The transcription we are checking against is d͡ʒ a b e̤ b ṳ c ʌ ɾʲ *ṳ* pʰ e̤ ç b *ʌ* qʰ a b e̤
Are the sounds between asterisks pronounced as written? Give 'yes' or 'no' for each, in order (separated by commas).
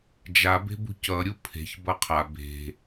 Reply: no, yes